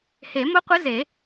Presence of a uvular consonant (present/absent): present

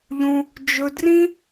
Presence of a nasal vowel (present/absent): present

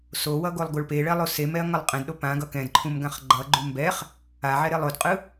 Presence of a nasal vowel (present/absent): present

